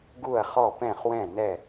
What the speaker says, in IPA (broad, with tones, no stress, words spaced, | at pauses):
ɡu˥˩ɐ̯χɔ˥˩pɛ̃˥˩χwɛ̃˥˩ nɛ˥˩